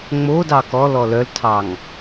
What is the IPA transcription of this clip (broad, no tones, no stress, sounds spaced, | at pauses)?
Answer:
ŋ͡m o d ɑ k ɔ l ɔ l œ l tʰ ɑ ŋ